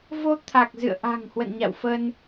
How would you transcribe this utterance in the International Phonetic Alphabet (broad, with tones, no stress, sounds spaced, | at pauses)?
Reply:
v o˧ t̪ʰ a˨˩ k̚ z ɨ̰˧˨ ə̯ ʔ a̤˨˩ ŋ h w ə̰˧˨ n ɲ a̰˧˨ w f ə˧ n